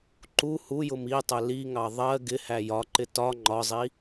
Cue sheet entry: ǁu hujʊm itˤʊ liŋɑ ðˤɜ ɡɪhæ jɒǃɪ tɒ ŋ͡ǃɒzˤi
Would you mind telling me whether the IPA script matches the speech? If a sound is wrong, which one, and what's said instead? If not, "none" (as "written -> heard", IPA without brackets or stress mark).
ǁ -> ǃ